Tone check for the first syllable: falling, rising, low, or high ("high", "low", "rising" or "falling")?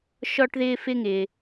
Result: high